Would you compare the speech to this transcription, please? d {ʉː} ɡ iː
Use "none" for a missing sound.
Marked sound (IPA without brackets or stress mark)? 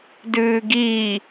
ʉː